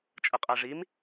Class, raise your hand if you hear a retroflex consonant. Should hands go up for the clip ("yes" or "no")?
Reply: yes